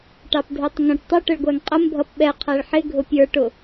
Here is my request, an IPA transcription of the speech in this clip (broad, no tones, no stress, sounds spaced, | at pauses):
ʈ ɑ p dʱ ə˞ tˤ ŋ ə̃ ʈ tˤ ə ʈ ə ɭ ɡʷ æ ŋ qʼ ə m bʱ ʌ p ɓ ɛ qʰ æ ɭ ħ ɪ ɡʱ ʊ pʲ ə˞ ʈ ʊ